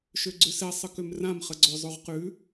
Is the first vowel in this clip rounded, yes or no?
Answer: yes